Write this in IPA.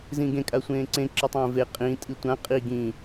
z ĩ ɡ ẽ kʼ a sʷ ẽː ǀ ẽ ǁ ɨ tˤ ẽː v e qʼ ĩ tʼ i tʷ ã qʼ i ɡ ĩ

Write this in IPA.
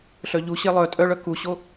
ɬ œ ʎ u ɕ e lˠ œ tʼ œ ɭ œ k u ɕ o

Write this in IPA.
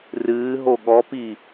r ɨː ɦ o ɠ ɔ p i

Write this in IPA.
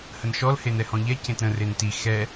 h ə n ʃ ɔ l h e n ɛ h ɔ̃ ʎ ɛ c ẽ t ɾ ə̃ r e n t i x ɛ

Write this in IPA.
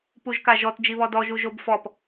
p u ʒ k a ʒ ɔ t d͡ʒ i β ɔ d ɔ ʒ u ʒ o b f ɔ p

